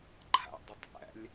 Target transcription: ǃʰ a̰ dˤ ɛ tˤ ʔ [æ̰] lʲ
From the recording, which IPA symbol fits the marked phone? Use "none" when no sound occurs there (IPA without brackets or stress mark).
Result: æ̰